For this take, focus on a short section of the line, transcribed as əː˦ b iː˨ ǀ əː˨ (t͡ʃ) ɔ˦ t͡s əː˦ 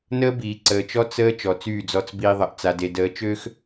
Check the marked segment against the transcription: correct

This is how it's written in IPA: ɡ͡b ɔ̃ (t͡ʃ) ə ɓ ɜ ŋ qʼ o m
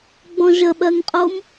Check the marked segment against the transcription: incorrect: ʒ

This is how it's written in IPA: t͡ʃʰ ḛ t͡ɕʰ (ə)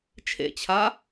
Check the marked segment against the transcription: incorrect: a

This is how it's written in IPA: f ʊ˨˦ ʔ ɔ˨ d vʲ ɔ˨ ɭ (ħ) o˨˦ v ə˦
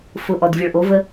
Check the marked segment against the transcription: incorrect: ʔ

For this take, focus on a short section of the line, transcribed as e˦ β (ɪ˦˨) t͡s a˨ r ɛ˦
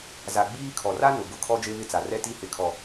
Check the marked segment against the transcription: correct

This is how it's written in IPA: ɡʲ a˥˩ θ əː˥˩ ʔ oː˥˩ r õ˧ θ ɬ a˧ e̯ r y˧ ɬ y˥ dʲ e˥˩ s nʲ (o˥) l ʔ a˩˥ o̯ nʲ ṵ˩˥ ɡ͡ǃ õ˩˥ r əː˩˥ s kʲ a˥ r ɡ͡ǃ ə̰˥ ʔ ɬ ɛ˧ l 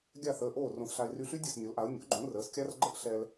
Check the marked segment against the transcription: incorrect: o˩˥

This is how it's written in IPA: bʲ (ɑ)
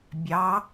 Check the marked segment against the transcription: correct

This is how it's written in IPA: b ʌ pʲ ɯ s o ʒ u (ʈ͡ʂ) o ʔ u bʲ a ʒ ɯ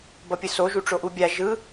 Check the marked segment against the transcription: correct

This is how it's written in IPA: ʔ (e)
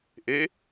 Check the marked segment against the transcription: correct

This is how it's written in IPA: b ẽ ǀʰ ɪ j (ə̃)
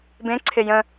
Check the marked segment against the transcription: correct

